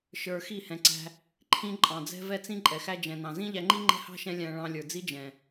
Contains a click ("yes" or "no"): yes